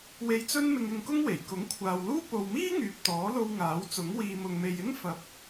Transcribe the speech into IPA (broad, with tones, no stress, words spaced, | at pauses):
we˧jt͡sɵ˥n mɪ˧ŋɪ˧ŋkʊ˥ŋwe˨˩j kʊ˨˥ŋkʷʰaː˨wluː˥ po˨wmiː˥ ŋyː˨p̚t̪ɔː˨˥lo˧w ŋaː˨˥wt͡sʊ˨˥ŋ wiː˨mʊ˨ŋme˨jɪ˥ŋ fɐ˨p̚